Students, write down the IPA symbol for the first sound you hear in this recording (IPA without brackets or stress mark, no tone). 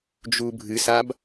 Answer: d͡ʒ